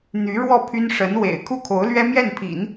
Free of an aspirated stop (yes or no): no